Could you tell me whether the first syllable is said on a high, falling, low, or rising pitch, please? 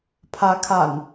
rising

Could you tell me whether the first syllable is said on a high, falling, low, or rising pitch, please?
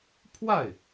falling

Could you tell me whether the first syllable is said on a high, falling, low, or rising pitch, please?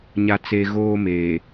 low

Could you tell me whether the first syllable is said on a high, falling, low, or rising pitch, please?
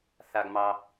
low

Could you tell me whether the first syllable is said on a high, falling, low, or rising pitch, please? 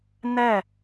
falling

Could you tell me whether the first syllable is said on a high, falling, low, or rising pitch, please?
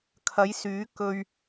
rising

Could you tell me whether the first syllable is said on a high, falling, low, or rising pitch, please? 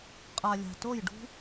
low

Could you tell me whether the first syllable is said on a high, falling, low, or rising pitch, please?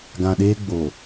low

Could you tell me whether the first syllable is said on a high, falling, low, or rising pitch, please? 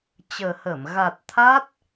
low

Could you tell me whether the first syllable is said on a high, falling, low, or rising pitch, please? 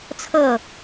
falling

